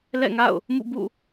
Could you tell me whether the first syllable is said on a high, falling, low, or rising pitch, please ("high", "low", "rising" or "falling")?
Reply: falling